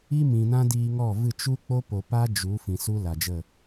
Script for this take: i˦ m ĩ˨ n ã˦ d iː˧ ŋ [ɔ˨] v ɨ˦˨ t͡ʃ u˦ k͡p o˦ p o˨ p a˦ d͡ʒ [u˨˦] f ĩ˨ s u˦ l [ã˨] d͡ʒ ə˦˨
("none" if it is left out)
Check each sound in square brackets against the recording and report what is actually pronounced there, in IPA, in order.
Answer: ɔ˦˨, u˨˦, a˨

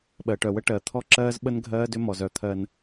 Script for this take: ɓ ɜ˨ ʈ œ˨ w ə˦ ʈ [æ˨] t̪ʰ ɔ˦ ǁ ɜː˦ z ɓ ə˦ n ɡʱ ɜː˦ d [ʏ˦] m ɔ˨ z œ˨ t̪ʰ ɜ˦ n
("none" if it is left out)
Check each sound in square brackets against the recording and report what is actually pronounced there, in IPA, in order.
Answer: ɜ˨, ʏ˦

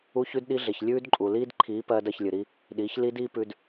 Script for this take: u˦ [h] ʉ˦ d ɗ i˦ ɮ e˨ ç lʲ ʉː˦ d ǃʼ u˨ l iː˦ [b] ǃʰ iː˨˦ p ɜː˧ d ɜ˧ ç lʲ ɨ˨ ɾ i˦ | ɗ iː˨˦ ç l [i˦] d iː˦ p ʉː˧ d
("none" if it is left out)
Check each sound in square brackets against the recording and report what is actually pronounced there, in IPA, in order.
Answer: ç, d, i˦

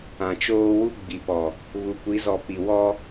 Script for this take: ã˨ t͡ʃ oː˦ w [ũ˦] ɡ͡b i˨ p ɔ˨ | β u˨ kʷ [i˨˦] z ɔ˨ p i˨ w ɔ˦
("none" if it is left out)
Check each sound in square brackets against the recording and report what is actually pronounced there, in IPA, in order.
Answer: u˦, i˨˦

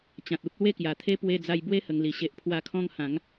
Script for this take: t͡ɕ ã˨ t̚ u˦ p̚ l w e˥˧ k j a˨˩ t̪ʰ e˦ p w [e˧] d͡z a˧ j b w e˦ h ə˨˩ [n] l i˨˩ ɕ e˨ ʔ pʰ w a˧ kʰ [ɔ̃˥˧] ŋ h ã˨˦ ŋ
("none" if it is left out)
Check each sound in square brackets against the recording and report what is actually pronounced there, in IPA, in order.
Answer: e˧, ŋ, ɔ̃˥˧

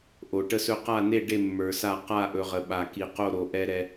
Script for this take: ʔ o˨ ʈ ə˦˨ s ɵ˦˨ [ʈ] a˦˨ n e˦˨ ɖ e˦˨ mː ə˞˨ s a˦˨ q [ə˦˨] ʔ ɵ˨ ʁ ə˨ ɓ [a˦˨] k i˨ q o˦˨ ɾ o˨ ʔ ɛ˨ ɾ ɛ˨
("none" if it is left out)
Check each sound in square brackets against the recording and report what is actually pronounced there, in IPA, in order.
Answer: q, a˦˨, a˨

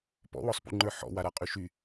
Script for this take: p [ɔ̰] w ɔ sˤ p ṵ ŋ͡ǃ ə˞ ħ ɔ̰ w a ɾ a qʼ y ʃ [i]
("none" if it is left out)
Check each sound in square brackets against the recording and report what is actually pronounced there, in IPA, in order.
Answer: ɔ̰, y

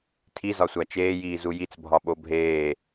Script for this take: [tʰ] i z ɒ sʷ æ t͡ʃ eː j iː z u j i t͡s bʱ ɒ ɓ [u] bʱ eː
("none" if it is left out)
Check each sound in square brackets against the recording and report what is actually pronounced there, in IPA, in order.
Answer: tʰ, o

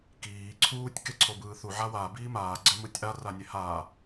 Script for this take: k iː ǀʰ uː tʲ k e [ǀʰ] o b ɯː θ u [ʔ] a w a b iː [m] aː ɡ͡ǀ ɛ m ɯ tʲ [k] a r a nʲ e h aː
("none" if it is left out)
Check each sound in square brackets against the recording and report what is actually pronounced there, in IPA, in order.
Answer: ǀʰ, ʕ, m, ʔ

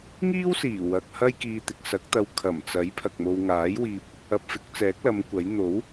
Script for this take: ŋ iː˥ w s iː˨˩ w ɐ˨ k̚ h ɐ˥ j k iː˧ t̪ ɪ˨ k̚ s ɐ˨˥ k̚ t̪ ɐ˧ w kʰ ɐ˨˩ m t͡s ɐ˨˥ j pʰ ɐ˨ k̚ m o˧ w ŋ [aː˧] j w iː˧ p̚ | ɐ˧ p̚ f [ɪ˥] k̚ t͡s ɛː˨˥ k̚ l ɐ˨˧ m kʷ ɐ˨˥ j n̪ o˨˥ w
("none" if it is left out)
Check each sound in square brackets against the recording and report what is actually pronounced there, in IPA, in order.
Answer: aː˨˥, ɪ˨˥

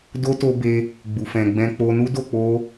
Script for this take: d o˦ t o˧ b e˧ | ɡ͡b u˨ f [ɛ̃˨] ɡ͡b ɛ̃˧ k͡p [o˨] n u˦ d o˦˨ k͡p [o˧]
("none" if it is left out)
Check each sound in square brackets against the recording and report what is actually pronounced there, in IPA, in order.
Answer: ɛ̃˨, o˧, o˧

